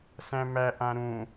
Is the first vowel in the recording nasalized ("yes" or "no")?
yes